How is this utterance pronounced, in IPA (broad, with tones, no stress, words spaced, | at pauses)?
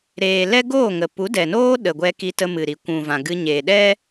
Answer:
ɾeː˨ lɛ˦ɡoː˦˨ŋə˨ pu˨˦dɛ˨noː˦ ɗə˨ɡʷɛ˧ki˧ tə˧mɨ˨ɾi˨ kʷũ˨vã˨ɡɨ˧ ɲeː˨ɗɛ˦